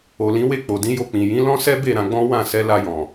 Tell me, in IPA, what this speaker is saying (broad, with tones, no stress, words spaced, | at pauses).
o˨lĩ˨˦we˦˨ k͡po˨dĩ˨˦jo˧ k͡pĩ˨ jĩ˨˦lɔ̃˦ sɛ˦be˦˨ ɾã˧ɡ͡bɔ̃˦ wã˦˨sɛ˨˦ la˧jɔ̃˨